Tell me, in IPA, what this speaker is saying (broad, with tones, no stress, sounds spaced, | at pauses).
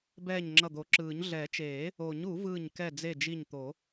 b ɛː˧˩ ɲ ŋ͡ǁ ʌ˧˩ d̪ o˨˩˦ ǁ ɯː˨˩˦ ɲ ɮ ɛ˨˩˦ t͡ʃ eː˨˩˦ | o˨˩˦ ɲ u˨˩˦ v ɯː˧˩ ɲ k ɛ˧˩ d͡z e˧˩ d͡ʒ i˧˩ ɲ t̪ o˨˩˦